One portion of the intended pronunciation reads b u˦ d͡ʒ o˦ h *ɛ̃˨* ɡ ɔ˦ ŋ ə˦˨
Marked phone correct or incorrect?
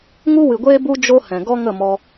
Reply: correct